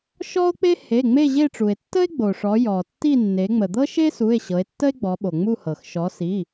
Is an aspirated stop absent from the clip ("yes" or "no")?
yes